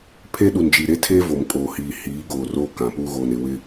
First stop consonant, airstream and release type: aspirated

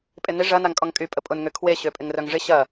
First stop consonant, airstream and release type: ejective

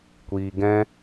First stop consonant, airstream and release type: plain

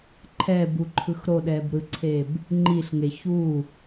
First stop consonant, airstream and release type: click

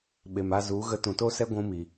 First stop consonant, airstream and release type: implosive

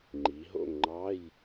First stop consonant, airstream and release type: click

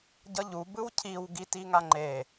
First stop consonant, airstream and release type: plain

